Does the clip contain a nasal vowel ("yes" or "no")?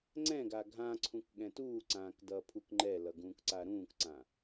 yes